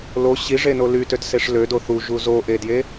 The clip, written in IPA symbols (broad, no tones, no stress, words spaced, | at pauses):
lo ɕiʐeno lytøtseʂ lødo θuʒu zoʔedje